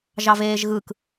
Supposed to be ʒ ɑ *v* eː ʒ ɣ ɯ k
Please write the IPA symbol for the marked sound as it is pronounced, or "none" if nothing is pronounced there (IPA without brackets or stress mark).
v